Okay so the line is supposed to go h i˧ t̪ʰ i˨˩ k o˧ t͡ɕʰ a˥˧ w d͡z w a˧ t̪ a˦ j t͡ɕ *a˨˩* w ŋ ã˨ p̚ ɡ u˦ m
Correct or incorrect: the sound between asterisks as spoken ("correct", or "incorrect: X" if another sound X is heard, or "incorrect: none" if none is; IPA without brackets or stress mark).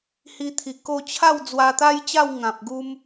incorrect: a˥˧